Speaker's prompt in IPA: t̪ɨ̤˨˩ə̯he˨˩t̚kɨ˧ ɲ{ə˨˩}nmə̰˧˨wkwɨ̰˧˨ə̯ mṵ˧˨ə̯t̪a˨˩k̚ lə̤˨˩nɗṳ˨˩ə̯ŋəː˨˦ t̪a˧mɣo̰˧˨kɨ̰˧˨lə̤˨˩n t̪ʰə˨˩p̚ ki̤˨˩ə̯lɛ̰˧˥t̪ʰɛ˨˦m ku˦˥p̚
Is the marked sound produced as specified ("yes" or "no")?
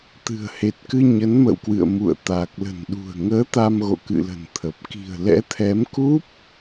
no